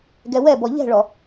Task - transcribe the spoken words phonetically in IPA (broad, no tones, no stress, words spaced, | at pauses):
ɡɛwɛbɔ ʎɛ̤ɭɔ